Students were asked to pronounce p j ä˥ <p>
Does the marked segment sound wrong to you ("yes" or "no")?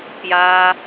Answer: yes